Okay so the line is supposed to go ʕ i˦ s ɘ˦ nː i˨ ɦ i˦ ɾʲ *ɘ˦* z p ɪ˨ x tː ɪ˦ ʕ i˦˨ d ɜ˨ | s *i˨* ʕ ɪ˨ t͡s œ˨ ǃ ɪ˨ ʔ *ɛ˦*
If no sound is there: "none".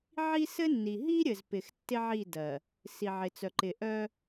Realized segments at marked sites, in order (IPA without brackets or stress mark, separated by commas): ɘ˨, i˨, œ˦